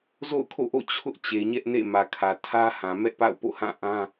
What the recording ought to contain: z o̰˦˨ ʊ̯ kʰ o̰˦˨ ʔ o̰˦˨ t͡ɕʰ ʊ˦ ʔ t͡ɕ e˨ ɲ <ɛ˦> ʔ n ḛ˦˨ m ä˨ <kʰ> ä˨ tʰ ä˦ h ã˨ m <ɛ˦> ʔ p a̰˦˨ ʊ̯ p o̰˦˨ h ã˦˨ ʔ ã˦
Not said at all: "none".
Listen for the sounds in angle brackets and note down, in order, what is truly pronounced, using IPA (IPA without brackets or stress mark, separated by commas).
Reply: ɛ˦, kʰ, ɛ˦